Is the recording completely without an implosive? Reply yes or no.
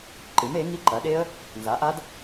no